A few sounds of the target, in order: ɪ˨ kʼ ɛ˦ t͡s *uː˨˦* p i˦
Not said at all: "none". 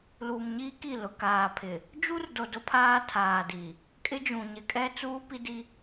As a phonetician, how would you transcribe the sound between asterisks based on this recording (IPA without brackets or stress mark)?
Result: uː˦